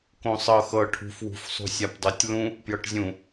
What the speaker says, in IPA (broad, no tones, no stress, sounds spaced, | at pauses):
k õ sˤ ɤ x ɤ ʈʰ ṳ f w ṳ f sˤ ṳ sʲ a p dˤ o tʲ l ũ | p j ɤ ʈ zʲ ũ